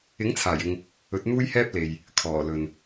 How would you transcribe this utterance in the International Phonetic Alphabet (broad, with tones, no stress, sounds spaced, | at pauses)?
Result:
ɪ˨˥ ŋ t͡sʰ aː˨˩ j ɪ˨ ŋ | ɵ˨˥ t̚ n̪ uː˥ j h ɛː˥ p̚ l e˨ j | kʰ ɔː˨˩ l ɵ˨ n